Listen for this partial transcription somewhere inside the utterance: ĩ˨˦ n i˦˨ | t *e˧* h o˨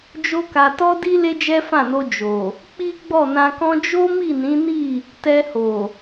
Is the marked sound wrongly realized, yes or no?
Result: yes